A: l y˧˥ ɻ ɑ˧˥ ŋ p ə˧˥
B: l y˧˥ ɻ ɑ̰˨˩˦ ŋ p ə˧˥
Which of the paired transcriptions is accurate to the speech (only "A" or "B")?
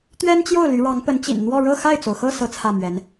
A